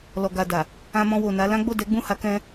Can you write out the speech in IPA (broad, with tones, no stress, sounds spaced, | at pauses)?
l ɔ˨ ɡ a˨ d a˨ | ã˧ m ɔ̃˧ w o˨ n a˨˦ l ã˦ ɡ͡b o˦˨ d ɛ˨˦ ɡ͡b ũ˦˨ h a˨˦ k ɛ̃˧